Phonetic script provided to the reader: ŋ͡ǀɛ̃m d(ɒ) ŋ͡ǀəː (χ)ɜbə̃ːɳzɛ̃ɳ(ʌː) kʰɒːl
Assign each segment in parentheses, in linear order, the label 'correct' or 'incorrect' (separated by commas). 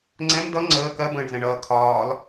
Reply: incorrect, incorrect, correct